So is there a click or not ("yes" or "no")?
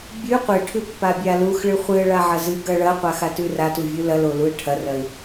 no